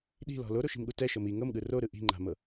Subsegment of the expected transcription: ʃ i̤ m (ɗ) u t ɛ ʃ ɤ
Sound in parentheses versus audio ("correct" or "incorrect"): incorrect